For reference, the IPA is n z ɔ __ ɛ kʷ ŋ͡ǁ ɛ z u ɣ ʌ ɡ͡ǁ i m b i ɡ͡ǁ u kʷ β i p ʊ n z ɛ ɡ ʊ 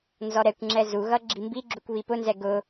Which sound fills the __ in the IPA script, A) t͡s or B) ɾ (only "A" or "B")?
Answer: B